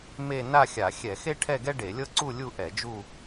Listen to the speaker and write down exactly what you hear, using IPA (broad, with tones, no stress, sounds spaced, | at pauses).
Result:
m e˥˧ n a˥˧ xʲ a˧˩˧ xʲ ɛ˧˩˧ x e˥ ʈʰ ɛ˥˧ ɡ ɛ˥ ɖ e˧˩˧ lʲ ɤ˥ ǀ u˥˧ lʲ u˥˧ ʔ ɛ˧˩˧ d͡ʒ u˥˧